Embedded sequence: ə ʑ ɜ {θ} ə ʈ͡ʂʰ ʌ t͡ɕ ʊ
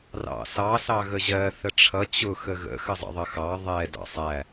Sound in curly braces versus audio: correct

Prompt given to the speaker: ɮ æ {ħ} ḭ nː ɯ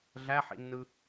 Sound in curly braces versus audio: correct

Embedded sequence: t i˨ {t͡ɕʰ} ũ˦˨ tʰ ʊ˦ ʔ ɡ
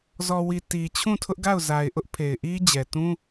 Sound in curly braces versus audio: correct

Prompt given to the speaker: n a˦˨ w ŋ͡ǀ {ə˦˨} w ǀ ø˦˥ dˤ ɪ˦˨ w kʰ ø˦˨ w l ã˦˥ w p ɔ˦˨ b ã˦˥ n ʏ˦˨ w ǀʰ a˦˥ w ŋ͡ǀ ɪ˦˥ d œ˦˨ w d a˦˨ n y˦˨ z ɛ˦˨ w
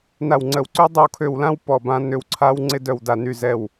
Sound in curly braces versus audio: correct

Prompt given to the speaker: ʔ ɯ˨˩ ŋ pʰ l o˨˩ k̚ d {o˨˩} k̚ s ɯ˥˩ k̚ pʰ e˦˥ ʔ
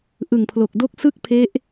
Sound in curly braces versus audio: incorrect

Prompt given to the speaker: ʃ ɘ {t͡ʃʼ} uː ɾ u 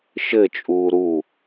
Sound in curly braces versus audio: correct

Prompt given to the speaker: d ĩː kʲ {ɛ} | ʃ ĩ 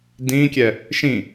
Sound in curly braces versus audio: correct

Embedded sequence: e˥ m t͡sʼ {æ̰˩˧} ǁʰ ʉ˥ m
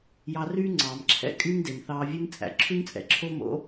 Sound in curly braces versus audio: correct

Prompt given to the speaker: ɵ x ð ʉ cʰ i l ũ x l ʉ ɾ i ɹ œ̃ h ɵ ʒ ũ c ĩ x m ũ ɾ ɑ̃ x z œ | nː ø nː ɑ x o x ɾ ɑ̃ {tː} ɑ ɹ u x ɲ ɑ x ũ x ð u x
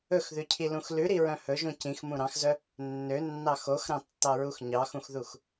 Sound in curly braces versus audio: correct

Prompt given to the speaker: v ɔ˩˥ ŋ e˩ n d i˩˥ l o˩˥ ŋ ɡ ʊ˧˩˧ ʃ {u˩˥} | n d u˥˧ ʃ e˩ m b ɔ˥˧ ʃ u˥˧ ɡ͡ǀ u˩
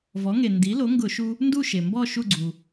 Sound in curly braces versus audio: incorrect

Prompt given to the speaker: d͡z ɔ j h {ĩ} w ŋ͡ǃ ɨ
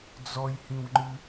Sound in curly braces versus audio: correct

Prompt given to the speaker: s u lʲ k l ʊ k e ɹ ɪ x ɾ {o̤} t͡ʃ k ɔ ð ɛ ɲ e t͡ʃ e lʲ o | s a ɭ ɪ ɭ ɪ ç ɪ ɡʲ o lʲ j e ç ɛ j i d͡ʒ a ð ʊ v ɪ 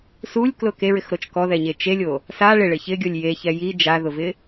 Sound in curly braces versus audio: incorrect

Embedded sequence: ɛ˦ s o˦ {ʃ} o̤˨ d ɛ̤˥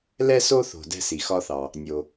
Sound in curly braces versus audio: incorrect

